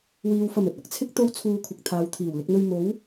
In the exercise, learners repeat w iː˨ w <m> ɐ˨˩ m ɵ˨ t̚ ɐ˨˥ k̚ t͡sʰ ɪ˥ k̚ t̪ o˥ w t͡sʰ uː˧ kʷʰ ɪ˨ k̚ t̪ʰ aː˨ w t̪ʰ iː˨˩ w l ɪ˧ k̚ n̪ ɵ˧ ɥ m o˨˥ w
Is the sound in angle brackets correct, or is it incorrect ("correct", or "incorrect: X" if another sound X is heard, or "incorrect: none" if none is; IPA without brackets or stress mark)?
incorrect: f